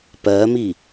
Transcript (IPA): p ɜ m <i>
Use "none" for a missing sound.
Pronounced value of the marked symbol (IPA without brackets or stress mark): i